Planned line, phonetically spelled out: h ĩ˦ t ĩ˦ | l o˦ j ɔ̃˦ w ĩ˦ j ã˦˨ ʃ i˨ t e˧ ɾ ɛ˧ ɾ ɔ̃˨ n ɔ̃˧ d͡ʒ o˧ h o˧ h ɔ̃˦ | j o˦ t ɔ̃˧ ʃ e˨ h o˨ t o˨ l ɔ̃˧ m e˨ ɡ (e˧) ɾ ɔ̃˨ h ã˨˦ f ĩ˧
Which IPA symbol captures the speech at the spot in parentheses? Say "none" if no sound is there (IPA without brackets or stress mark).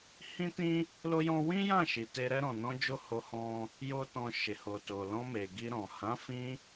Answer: i˧